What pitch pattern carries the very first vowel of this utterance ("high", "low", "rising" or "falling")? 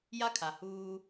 high